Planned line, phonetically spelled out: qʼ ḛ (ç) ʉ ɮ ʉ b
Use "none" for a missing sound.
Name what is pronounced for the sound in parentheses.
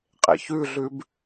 ç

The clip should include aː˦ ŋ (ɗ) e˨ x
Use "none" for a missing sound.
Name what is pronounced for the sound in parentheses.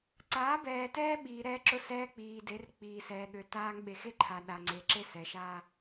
ɓ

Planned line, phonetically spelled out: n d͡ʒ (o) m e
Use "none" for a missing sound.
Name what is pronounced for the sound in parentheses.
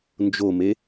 o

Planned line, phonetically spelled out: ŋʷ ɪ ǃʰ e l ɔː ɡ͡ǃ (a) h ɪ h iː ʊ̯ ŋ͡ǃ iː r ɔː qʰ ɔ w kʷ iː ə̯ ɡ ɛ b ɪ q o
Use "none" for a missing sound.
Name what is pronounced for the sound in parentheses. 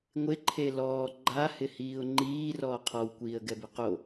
a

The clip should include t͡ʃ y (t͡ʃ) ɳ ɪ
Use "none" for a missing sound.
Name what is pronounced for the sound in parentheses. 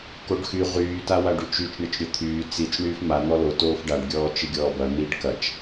t͡ʃ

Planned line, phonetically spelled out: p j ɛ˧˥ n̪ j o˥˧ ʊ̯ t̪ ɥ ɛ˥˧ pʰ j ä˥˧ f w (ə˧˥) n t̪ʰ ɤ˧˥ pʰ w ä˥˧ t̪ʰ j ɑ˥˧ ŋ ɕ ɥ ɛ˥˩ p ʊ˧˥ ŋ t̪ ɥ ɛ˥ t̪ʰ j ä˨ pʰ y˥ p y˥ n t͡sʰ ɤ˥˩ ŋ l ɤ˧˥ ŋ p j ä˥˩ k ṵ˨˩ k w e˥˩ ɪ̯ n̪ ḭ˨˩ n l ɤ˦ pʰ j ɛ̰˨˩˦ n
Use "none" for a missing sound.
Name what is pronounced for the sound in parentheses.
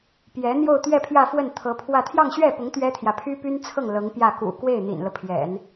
ə˥˩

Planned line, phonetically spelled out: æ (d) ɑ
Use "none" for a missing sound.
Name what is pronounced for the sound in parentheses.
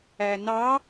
n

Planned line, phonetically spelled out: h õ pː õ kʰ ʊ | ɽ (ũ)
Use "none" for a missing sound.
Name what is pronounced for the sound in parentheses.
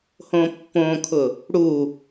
u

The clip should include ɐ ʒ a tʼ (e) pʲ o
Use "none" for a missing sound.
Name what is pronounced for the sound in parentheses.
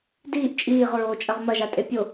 e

